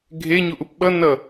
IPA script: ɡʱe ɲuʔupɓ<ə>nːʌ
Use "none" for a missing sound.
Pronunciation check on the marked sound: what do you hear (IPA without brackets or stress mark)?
ʌ